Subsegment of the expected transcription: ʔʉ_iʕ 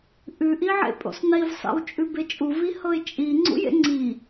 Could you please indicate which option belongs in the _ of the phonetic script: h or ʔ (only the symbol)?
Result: ʔ